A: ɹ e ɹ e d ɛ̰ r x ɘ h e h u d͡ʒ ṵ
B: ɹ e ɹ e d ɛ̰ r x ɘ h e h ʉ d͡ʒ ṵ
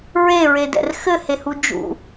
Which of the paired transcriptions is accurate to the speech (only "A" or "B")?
A